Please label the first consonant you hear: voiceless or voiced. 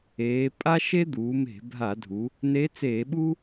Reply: voiceless